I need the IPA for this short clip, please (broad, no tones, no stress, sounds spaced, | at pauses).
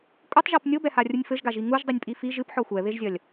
kʷʼ ɘ tˤ ʒ ɔ p nʲ o b ɛ h a rʲ u nʲ f ɘ ʒ ɡ a ʒ i ŋ u ʒ dˤ i nʲ pʼ i f i ʒ ɨ p ħ ɔ xʷ ɛ β e ʒ zʲ ɐ lʲ